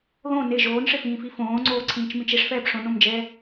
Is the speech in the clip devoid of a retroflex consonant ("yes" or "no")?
no